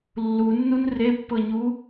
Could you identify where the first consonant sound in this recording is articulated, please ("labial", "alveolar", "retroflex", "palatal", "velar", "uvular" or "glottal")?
alveolar